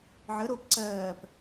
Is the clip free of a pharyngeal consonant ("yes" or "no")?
no